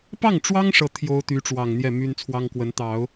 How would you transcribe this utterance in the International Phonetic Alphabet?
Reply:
p ɑ˥˩ ŋ ʈ͡ʂ w ɑ˥ ŋ ʂ ɤ˥˩ t̪ʰ j o˥ ʊ̯ t̪ y˧˥ ʈ͡ʂ w ɑ˨˩ ŋ n̪ j ɛ˥˩ m y˥ n t͡sʰ w ɑ˥ ŋ k w ə˧˥ n t̪ ɑ˨˩˦ ʊ̯

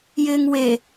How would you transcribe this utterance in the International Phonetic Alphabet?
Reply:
j ɪː ŋ w e

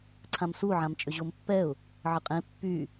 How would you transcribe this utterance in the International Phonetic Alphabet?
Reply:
ǀʰ ã m s u ʕ ã m t͡ʃʼ ʏ ʑ o m pː ɛ ʊ̯ | ʕ ə qʼ ẽ pː y

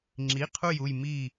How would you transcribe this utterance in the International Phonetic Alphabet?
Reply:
ŋ͡ǁ i˧˥˧ qʰ u˥˧ j u˥˧ j m i˥˧

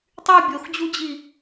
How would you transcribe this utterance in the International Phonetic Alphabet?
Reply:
tˤ y bʲ o x d͡ʑ u d͡ʑ i

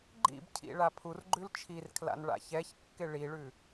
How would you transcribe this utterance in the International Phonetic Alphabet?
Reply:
ɡ͡ǃ ḭ b cʰ ḭ ɭ a pʰ u r ɡ͡ǃ ʉ l t͡ʃʰ i r kʰ l a̰ n ɭ a̰ ç ɛ ç kː ɪ ɭ i ɭ ʉ

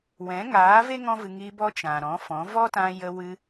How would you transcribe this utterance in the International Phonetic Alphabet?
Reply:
w ɛ̃˨˦ ŋ aː˨˦ v e˦ ŋ ɔ̃˦ v ɨ˧ ŋ i˧ b ɔ˦ t͡ʃ ã˨ ɾ ɔ̃˨˦ f ɔ̃˨˦ v ɔ˦ t ã˧ j ə˧ w ɨ˧

